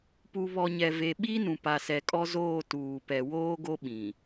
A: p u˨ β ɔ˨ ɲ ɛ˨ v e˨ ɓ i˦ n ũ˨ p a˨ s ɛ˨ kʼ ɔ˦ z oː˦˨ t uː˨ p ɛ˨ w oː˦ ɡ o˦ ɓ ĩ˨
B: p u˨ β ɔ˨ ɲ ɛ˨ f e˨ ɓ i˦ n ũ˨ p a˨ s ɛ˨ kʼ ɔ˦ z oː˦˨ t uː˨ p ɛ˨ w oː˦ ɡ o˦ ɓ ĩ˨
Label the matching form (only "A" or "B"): A